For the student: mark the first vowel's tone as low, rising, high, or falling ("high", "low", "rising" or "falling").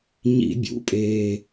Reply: high